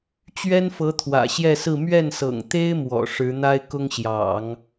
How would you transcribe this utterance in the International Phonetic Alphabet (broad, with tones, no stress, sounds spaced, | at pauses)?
t͡ɕ ɥ ɛ˥ n f ɤ˧˥ t̪ʰ w ä̰˨˩ ɕ j ɛ˥˧ s ɹ̩˥˧ m ɥ ɛ˥˩ n s ɤ̰˨˩ ŋ t̪ e˥ ɪ̯ m w ɔ̰˨˩ ʂ ɻ̩˧˥ n̪ a˥ ɪ̯ k ʊ˥ ŋ ɕ j ɑ̰˨˩˦ ŋ